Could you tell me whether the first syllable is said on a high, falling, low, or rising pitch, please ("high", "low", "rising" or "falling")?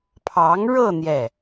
rising